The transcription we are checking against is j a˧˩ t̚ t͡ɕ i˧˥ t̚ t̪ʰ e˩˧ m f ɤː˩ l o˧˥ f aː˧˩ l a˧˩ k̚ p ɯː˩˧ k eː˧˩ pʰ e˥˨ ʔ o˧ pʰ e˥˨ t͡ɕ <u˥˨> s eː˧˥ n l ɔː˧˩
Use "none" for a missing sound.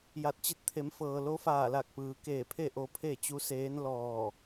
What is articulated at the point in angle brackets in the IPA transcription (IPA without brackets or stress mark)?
u˧˥